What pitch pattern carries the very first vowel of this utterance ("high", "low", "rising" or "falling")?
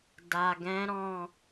low